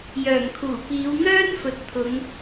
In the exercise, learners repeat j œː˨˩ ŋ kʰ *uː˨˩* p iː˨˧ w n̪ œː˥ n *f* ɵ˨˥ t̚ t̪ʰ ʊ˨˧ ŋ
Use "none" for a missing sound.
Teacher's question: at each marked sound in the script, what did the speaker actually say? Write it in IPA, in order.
uː˨˩, f

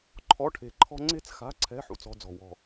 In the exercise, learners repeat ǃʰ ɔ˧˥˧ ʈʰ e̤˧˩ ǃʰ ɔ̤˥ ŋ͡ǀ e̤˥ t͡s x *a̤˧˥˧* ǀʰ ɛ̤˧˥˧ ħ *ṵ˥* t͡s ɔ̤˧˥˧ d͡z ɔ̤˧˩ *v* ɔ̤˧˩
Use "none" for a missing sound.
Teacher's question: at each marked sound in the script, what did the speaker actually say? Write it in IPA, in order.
a̤˧˥˧, ṵ˥, w

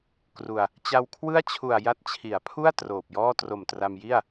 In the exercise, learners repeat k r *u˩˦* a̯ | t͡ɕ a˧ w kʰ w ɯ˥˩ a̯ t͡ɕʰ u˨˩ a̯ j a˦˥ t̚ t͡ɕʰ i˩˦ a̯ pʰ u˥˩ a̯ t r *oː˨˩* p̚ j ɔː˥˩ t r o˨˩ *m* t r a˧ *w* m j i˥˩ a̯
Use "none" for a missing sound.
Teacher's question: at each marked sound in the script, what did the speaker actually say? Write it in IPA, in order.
u˧, oː˨˩, m, none

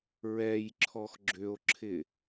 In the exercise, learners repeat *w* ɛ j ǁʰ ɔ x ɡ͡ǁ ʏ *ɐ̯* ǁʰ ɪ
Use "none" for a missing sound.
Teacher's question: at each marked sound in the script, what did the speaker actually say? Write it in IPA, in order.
ɹ, o̯

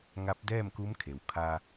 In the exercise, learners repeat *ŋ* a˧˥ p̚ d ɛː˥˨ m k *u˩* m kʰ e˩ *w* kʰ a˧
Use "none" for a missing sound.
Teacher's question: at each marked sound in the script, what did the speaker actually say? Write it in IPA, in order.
ŋ, u˧˥, w

